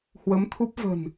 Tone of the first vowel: rising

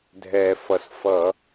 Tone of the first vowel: low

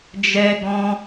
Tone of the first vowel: high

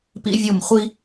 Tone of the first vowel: high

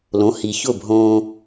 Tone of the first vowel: rising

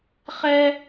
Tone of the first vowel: high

